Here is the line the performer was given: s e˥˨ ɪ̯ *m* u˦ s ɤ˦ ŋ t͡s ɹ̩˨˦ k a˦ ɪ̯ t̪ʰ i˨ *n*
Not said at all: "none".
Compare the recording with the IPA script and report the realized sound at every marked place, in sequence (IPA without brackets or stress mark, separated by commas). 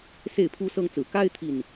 pʰ, n